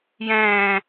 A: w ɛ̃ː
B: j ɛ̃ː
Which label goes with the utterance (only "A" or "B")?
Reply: B